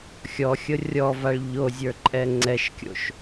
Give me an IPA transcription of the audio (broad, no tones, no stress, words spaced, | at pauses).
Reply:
xʲɔxʲɤ rʲɔvaɭ ʎozʲə˞ǃʼɛ ŋ͡ǀɛʃkʲo̰ʃ